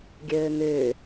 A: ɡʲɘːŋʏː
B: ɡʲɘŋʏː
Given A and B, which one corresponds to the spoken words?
A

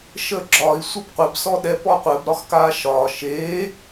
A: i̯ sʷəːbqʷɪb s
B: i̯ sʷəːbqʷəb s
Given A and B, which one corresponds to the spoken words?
A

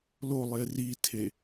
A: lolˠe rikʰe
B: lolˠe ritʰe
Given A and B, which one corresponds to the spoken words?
B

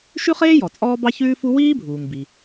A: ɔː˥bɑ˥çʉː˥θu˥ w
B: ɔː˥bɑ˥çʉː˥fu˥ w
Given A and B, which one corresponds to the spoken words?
B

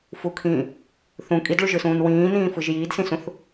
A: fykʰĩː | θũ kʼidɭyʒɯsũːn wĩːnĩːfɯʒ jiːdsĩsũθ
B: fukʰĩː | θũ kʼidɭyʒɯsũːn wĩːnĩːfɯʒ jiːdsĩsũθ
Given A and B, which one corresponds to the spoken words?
B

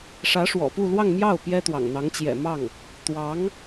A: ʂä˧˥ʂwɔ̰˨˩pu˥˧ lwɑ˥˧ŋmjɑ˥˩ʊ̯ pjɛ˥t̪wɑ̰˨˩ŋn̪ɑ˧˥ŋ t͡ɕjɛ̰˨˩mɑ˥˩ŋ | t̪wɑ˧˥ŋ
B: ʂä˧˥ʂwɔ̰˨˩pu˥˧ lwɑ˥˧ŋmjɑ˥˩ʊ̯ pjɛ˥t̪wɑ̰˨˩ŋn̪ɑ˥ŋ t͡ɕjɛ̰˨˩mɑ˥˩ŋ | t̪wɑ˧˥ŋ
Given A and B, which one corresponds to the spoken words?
A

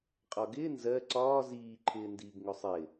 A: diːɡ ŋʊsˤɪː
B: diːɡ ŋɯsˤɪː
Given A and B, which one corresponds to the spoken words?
A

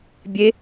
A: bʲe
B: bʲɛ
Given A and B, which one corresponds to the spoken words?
A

